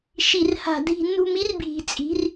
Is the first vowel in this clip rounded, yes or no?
no